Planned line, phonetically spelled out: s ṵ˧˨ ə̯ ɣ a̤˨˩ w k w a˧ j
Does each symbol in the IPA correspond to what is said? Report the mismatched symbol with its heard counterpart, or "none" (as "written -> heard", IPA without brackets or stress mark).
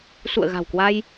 none